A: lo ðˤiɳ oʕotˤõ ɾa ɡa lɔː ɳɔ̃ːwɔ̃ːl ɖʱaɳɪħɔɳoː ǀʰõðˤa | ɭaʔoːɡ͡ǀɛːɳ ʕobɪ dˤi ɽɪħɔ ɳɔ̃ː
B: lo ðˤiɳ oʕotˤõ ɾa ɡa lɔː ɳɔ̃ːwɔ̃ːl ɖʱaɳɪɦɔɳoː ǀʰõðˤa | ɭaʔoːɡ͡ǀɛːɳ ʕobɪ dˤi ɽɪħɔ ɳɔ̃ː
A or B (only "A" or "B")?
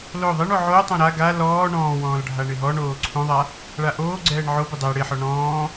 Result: B